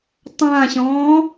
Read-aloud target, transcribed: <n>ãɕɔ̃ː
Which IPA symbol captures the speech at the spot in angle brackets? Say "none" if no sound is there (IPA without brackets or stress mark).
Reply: tˤ